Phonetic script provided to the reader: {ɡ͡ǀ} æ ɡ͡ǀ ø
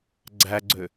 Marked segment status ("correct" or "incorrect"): correct